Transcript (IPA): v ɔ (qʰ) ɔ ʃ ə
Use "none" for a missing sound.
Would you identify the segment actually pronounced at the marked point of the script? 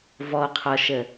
qʰ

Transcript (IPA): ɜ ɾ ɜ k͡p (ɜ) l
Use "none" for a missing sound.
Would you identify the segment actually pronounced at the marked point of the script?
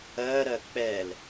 ɛ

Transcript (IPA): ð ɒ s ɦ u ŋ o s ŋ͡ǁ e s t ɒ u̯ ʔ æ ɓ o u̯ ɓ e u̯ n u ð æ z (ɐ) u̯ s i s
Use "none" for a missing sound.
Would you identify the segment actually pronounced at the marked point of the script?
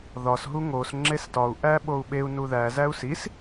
æ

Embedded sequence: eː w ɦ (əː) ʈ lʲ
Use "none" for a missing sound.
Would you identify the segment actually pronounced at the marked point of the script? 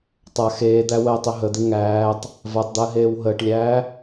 əː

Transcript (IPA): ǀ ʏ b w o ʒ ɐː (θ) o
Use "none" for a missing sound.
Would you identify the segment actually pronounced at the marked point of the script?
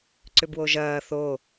θ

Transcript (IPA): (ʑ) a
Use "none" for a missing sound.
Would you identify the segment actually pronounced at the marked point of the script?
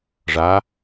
ʐ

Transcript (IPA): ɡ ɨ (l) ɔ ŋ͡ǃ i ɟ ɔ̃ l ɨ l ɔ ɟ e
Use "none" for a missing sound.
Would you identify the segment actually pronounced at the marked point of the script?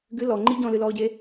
l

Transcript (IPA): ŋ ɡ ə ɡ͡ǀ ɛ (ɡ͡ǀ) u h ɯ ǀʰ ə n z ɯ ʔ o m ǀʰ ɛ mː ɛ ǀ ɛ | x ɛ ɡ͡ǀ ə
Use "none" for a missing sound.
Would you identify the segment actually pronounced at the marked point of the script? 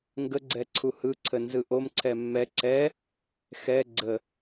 ǀʰ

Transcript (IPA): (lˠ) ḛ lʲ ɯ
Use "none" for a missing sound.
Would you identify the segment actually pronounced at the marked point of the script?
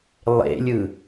lˠ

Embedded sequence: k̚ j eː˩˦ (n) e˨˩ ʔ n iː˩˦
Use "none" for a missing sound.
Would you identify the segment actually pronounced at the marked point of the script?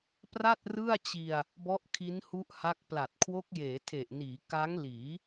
tʰ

